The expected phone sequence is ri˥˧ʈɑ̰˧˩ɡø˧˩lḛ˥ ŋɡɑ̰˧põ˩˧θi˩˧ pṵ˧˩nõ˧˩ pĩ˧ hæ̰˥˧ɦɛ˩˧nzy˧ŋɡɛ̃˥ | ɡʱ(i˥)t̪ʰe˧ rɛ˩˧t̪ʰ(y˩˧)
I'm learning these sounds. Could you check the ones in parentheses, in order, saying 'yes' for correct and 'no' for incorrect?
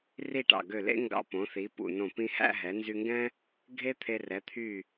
no, no

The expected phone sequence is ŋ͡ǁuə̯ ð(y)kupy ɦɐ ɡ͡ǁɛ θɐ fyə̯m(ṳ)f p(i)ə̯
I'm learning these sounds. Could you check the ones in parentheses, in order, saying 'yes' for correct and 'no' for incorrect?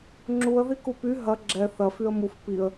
no, no, yes

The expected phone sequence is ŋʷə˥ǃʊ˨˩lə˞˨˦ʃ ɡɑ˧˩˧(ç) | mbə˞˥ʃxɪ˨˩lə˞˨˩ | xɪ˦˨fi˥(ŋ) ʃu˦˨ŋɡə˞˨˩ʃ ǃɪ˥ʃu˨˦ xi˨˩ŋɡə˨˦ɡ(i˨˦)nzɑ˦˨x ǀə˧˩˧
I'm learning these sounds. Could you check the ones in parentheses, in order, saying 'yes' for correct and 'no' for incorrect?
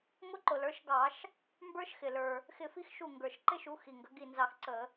no, no, no

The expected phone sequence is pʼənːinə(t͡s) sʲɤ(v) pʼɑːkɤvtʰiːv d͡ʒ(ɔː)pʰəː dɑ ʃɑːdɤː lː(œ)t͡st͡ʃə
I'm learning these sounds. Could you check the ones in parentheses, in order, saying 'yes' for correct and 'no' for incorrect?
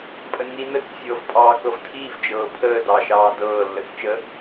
yes, yes, no, no

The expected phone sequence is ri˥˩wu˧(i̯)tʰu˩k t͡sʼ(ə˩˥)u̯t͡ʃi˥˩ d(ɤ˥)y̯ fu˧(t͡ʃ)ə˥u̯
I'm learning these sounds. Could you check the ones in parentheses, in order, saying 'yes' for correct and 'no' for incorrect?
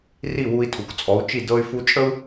yes, no, yes, no

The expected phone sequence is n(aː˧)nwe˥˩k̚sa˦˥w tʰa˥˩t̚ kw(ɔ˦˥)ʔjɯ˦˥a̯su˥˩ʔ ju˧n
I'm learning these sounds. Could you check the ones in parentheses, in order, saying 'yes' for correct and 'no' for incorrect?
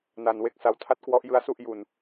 no, yes

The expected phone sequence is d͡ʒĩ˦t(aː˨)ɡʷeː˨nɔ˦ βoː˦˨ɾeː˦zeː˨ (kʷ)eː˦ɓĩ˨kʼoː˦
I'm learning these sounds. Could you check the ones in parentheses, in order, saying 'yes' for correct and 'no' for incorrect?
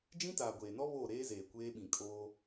yes, yes

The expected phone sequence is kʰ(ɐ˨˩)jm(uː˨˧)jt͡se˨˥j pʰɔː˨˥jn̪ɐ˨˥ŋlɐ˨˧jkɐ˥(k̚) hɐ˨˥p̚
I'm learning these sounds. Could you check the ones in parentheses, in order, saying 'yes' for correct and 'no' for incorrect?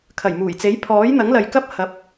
yes, no, no

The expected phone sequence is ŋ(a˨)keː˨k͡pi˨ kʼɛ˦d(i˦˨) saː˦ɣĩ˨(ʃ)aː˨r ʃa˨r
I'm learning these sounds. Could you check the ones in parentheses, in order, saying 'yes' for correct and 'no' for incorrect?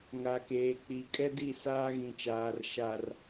yes, yes, no

